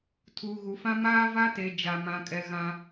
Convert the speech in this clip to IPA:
tʰ uː˨ ɣ u˨ f ã˦ m aː˦ v a˦ t e˨ d͡ʒ a˨ m ã˨ kʼ ɛ˨ ɣ ã˨

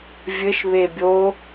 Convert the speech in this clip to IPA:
vʲ ɘ ʃ β e bʲ o

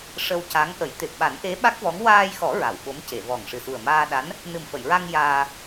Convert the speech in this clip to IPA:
ʂ ə˧ w c a˧˥ ŋ ʔ ə˨˩˦ j t̪ e˨˩ p̚ ɓ a˨˩˦ n ʔ e˧˥ ɓ a˦˥ k̚ v ɔ˧˥ ŋ w aː˧ j x ɔ˨˩˦ ɹ a˨˩˨ w ɓ o˧˥ m c e˨˩˨ v ɔ˨˩ ŋ ʂ ɨ˨˩ s u˨˩ ə̯ m aː˧ ɗ a˧˥ n | n ɨ˨˩ m f ə˨˩˨ j ɹ a˧ ŋ j aː˧

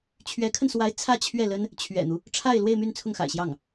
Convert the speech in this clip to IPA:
t͡ɕʰ ɥ ɛ˧˥ kʰ ə˧ n s w a˧˥ ɪ̯ t͡sʰ ä˥˧ t͡ɕʰ ɥ ɛ˥˩ l ə˥ n | t͡ɕʰ ɥ ɛ̰˨˩ n̪ u˦ | ʈ͡ʂʰ a˥˧ ɪ̯ l w e˥˧ ɪ̯ m y˥˧ n t͡sʰ ʊ˥˩ ŋ x a̰˨˩ ɪ̯ ɕ j ɑ˥˩ ŋ

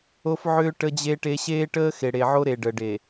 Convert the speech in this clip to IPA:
o˦ f ʕ ʏː˦ ʈ ə˦ d͡ʑ e˦ ʈ e˦ ɕ eː˦ ʈ əː˦ x e˨ ɽ e˨ ʕ o˦ ɾ e˨ ɖ ə˨ ɖ e˨

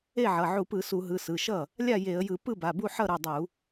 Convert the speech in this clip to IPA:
e˥˩ ʕ ʌ˩˧˩ ʕ u˧˩˧ p ɯ˧˩˧ s u˧˩˧ ɦ ɯ˩˧˩ s ɯ˩˧˩ ʃ ʌ˥˩ | lʲ a˥˩ j e˧˩˧ ə̯ j ɯ˧˩˧ p ɯ˥˩ b a˩˧˩ b u˥˩ ħ ʌ˥˩ ɾ ɯ˩˧˩ dˤ u˧˩˧

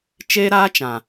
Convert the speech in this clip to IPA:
t͡ʃ eː˦ ɾ aː˦ t͡ʃ ã˨

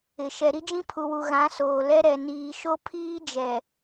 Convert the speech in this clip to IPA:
ɪ˨ ʃ ɛ˨ ɾ i˦ d͡ʒ ĩ˦ pʰ u˨ w u˨ ɣ ã˨˦ s oː˨ l ɛ˦ ɾ ɛ˨ n iː˨ ʃ o˦ pʰ iː˦ d͡ʒ ɛ˨

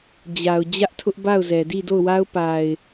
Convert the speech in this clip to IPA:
d͡ʑ a˨ ʊ̯ d͡ʑ ä˦ ʔ tʰ ʊ˦ ʔ b a˦˨ ʊ̯ z ɛ˨ d i˦˨ d o˦˨ ʊ̯ w a˦ ʊ̯ p a˨ ɪ̯

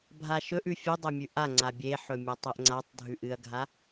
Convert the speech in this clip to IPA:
bʱ a ʃ ɵ ʔ ʉ fʲ ɨ dˤ e mʲ ʉ ʔ a ŋ͡ǀ a bʲ e ħ ɵ mʲ a tˤ e ʔ ŋ͡ǀ a tˤ dʱ ʉ ʔ ɨ ɐ̯ ɡʱ a

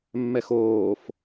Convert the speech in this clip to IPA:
mː ɛ x oː f

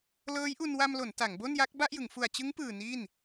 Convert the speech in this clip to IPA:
l ɤː˦˥ j ʔ u˧ n w a˧ m l o˩˦ n t a˩˦ ŋ b o˥˩ n j a˦˥ k̚ b a˥˩ ʔ j ɯ˩˦ ŋ f u˨˩ a̯ t͡ɕ ɯ˦˥ ŋ p ɯː˨˩ n i˥˩ n

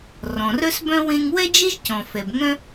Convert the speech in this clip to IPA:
r ɔ̃˩ r œ˥ s b œ̃˥ w ẽ˧ ŋ w ɛ˥ d͡ʒ e˥ ʒ c ɔ̃˩ f ɛ˩ b ŋ œ̃˥

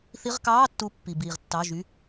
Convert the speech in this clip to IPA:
θ i˧˥˧ ʁ k ɑː˧˥˧ tː u˨˦ pː i˩ b iː˩ ʁ tː ɑ˩˧˩ ʒ y˩˧˩

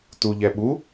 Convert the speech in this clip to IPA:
t u ʎ ɛ ɓ u

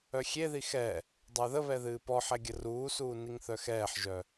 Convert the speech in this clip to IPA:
œ xʲ e ð i x ɛ | dˤ ə˞ ð ə β ɛ ð ɨː p ɔ ħ ɛ ɡʲ ə r uː s uː n i ŋ θ œ x ɛː ħ ʒ œ

